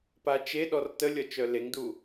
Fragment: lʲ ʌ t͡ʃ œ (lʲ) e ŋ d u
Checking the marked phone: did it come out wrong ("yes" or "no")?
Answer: yes